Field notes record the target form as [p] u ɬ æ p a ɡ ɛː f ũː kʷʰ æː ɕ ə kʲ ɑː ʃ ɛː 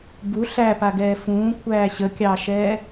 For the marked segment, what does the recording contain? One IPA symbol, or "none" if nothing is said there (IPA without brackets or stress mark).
b